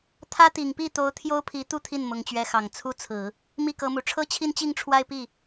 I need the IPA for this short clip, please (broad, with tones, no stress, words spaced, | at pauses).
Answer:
t̪ʰä˥t̪i˨˩ŋpi˥˩t̪o˧˥ʊ̯ t̪ʰjo˥ʊ̯pʰi˧˥t̪u˥˧ t̪ʰi˥˩nmʊ˧˥ŋt͡ɕɥɛ˧˥xɑ˨˩ŋ t͡sʰu˥t͡sʰɹ̩˨˩˦ | mi˥˩kɤ˧˥mu˨˩ ʈ͡ʂʰɤ˥t͡ɕʰi˥˧nt͡ɕi˥˧ŋ ʈ͡ʂʰwa˥˧ɪ̯pi˥˩